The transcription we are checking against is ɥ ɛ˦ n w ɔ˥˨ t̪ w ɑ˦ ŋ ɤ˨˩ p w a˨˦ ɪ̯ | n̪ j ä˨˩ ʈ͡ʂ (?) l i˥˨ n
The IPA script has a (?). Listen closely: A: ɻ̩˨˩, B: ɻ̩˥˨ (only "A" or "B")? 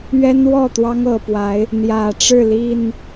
B